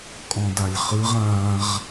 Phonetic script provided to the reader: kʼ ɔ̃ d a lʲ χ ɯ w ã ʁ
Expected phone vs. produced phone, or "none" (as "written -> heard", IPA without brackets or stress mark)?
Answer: w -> ʁ